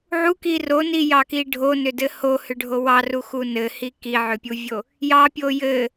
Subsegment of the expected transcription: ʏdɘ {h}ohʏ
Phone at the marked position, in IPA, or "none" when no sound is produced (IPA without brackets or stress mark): h